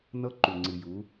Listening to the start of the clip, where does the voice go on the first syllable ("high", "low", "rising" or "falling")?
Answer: high